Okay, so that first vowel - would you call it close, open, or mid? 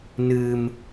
close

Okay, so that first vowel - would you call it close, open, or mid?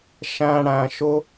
open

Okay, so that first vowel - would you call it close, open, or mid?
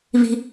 close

